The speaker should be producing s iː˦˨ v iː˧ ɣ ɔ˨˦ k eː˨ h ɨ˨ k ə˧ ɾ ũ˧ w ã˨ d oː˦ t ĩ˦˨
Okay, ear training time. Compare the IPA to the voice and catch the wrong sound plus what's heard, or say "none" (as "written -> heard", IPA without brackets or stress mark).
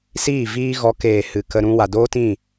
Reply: ã˨ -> a˨